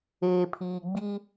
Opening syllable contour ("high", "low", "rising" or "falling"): low